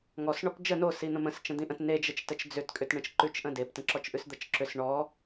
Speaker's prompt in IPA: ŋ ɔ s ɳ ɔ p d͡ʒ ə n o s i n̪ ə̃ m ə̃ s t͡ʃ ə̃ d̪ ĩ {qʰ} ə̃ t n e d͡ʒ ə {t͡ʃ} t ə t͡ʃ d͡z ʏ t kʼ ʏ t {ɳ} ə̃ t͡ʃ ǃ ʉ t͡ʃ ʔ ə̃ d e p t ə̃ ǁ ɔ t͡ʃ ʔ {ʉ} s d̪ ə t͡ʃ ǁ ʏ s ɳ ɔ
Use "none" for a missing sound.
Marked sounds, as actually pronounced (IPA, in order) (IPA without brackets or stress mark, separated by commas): ʔ, t͡ʃ, ɳ, ʉ